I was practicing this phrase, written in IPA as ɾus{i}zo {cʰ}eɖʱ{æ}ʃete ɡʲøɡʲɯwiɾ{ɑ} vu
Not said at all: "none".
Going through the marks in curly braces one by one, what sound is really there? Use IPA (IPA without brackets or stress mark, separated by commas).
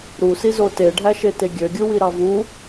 i, t, æ, ɑ